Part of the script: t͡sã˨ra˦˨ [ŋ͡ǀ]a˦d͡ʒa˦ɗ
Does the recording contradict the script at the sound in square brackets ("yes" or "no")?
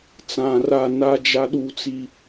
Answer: yes